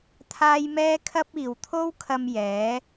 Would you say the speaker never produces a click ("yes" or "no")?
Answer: yes